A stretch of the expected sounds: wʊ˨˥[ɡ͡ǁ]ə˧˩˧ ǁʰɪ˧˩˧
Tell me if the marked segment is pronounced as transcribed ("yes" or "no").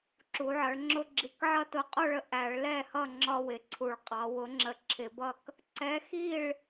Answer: no